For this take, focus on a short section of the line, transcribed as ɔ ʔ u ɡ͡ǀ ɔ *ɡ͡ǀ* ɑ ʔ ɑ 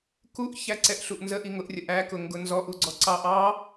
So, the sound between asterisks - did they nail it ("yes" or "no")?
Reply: no